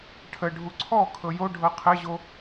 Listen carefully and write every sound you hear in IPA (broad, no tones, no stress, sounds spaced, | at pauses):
ʈʰ ə ɖʱ u ǀʰ ɔ kʰ ɤ j o ɖʱ ɤ qʰ ɘ ʑ o